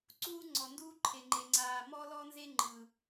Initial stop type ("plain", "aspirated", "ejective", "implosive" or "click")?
click